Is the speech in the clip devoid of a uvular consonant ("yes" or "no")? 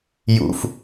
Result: yes